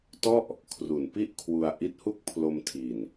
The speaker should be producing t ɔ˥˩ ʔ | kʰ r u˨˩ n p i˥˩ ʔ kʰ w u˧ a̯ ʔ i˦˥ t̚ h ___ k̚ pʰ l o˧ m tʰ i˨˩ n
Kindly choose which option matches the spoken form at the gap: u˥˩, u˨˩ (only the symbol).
u˥˩